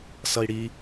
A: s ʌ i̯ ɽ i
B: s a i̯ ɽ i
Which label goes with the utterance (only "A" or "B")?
A